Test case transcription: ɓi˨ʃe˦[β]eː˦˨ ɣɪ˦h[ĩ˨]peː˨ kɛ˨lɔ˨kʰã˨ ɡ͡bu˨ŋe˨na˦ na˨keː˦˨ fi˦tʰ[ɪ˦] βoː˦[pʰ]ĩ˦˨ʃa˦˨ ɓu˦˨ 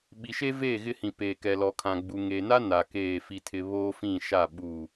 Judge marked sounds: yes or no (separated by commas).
no, yes, yes, no